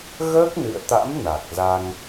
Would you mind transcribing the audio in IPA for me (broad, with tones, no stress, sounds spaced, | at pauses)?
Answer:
ɣ əː˦˥ k̚ n ɨ̰˧˨ ə̯ t̪ a̰˧˥ m n a˨˩ k̚ z a˧ ŋ